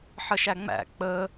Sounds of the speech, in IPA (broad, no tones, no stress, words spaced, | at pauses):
ħəʃæŋ͡mæ̰ k͡pə